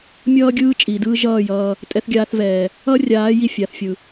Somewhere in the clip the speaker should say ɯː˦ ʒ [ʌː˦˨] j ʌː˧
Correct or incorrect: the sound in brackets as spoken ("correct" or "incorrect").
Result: correct